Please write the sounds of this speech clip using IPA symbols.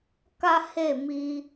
k a˦ h e˦˨ m i˧

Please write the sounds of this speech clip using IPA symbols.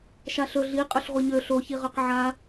ʃ a ɬ ɵ ɮ i qʼ ø ɬ ʁʷ e ɲ ø ɬ o ç i ʁ ø q ʕ a

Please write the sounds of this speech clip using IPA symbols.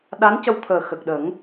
ɗ a˧˥ n c ə˧ w t̪ʰ əː˨˩ x ə˨˩ k̚ ɗ ə˨˩˦ ŋ

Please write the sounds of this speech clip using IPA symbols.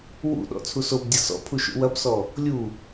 w ṵ ɗ ɔ̰ t͡sʰ u s o b dʲ ɐ s ɔ̰ pʰ u ʃ ṵ w ɐ b s ɔ | lʲ u

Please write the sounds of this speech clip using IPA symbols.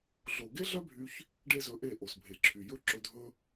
ɮ o˨ ɡ e˦ ɮ œ˦ bʱ y˧ ç | ɖ e˦ z ɵ˧ ʔ e˦˨ ʔ o˨ s bʱ e˨ ǁʰ y˨ j ɵ˦ ǁ ɵ˧ dʱ ɵ˦

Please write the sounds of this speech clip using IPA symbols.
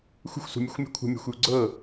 xʷ ə̤ xʷ s ṳ mʲ u xʷ mʲ ɔ̤ kʷʰ ə̤ mʲ a̤ xʷ j u ɡ͡ǀ ɤ

